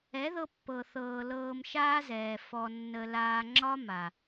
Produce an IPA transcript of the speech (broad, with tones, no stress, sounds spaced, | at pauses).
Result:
ɛ˨˦ ð ɤ˧ pː ɤ˨ θ ɤː˨ l ɤː˧ m ʃ aː˦ z ɛː˨ f ɔ˧ nː ə˧ l aː˧ ŋ͡ǁ ɒ˦ m a˨